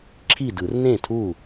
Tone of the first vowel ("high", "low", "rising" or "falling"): falling